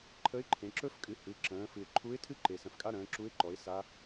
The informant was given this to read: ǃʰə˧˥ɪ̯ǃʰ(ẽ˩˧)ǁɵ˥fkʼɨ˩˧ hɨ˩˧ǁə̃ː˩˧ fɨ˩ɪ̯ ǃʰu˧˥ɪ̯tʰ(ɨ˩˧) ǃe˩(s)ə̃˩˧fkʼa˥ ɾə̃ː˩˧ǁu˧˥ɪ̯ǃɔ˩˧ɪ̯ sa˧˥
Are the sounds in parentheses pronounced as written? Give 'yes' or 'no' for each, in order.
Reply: yes, no, yes

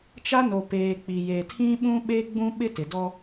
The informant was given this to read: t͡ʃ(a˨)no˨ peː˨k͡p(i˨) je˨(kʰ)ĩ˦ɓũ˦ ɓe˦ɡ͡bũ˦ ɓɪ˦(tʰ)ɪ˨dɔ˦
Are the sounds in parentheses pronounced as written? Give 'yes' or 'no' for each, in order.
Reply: no, yes, no, no

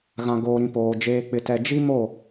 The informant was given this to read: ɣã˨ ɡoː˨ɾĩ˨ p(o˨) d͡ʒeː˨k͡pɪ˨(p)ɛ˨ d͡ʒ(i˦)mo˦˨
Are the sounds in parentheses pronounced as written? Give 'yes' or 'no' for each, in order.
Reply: no, no, yes

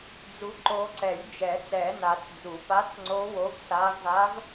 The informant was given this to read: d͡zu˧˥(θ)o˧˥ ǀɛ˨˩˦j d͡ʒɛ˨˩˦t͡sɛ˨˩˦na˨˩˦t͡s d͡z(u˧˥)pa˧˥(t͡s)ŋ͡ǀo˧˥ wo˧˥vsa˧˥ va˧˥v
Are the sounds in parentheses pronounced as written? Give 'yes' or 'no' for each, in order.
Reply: no, no, yes

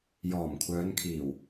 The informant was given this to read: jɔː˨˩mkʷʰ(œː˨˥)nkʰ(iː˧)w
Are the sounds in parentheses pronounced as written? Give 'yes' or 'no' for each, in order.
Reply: no, no

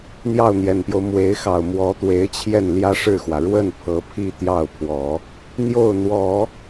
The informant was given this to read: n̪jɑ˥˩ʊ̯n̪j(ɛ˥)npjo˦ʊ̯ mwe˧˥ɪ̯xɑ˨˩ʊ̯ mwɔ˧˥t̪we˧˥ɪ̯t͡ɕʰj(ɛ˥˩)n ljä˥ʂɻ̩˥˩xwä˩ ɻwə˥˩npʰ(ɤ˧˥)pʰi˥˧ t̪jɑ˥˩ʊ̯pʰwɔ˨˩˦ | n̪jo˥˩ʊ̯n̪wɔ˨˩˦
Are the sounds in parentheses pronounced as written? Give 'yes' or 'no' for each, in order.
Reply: no, yes, yes

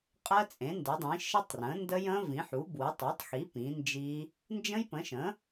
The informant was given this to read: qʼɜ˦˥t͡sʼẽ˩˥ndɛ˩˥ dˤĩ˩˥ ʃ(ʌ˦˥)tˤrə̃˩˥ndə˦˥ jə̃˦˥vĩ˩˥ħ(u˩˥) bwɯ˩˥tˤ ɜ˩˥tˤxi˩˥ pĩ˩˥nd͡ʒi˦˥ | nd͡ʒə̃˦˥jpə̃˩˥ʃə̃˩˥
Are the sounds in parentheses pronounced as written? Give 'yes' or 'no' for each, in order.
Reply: no, yes

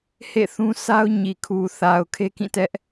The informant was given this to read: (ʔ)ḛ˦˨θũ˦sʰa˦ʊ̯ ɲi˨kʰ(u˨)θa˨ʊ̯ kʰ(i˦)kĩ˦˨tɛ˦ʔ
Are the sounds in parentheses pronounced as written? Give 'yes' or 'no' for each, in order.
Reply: no, yes, no

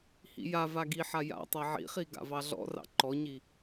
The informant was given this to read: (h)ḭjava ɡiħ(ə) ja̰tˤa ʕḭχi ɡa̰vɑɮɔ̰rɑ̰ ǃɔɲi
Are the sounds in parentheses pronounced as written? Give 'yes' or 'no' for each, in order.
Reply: yes, no

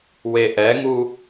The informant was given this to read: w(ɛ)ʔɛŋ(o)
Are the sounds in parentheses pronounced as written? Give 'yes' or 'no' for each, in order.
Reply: no, no

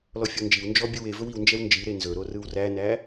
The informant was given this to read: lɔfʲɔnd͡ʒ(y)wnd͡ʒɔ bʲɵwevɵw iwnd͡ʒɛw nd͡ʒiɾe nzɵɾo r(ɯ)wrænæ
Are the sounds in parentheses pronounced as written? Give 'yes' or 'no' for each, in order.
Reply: no, yes

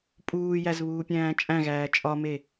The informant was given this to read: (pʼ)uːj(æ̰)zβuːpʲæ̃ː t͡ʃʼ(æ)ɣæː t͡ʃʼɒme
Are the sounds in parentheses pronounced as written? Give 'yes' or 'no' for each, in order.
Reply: yes, no, no

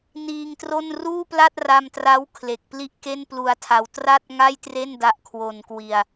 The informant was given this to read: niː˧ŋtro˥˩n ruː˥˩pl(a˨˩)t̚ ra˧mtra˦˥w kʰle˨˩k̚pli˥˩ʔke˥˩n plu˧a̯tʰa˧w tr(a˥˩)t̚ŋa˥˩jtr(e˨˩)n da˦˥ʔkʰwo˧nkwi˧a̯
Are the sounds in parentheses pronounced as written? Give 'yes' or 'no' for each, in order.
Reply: no, yes, no

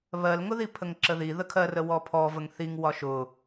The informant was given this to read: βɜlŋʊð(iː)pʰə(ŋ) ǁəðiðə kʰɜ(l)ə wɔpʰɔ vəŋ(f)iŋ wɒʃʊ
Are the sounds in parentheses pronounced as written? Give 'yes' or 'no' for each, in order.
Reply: no, yes, no, no

